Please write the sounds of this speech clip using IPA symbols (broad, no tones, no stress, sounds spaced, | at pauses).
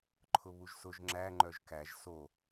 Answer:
ǃʰ ʊ β u ʒ s ʊ ʒ ŋ͡ǁ æ ŋ͡ǃ œ ʒ k æ ʒ s o